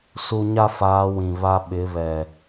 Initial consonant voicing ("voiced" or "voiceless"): voiceless